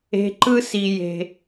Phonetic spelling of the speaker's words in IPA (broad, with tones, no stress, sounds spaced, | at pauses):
e̤˧ ǃ ɯ˦ s i˧ j e̤˧